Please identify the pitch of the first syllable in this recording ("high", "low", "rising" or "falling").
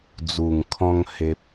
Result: low